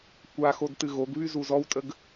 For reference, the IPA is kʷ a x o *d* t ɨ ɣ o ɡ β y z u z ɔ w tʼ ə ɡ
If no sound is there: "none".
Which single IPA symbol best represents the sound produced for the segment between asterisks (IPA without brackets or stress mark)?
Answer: d